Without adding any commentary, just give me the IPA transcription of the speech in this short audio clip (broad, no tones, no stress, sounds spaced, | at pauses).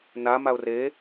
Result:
n a m a ʊ̯ r e